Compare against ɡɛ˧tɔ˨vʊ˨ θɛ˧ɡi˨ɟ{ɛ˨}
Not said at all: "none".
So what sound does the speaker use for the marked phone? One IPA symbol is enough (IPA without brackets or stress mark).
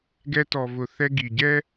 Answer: ɛ˦